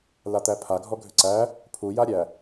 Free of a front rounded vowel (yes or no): no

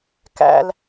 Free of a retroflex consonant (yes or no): yes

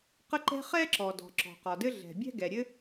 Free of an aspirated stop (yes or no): yes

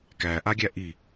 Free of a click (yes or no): yes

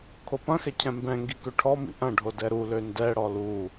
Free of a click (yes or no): yes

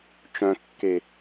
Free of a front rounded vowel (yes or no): no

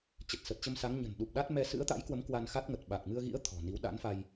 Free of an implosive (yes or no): no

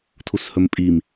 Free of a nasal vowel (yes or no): yes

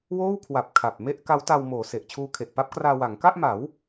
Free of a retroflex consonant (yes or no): yes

